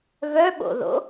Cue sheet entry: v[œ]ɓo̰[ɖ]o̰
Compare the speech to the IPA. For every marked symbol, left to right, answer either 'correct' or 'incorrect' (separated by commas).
correct, incorrect